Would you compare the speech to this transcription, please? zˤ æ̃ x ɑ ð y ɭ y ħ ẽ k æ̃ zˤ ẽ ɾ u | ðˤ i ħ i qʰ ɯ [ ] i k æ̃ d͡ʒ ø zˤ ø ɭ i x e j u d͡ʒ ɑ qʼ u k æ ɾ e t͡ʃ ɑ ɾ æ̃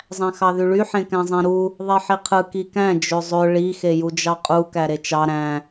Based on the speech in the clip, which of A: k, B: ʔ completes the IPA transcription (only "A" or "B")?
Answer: A